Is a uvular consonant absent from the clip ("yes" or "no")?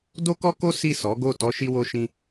yes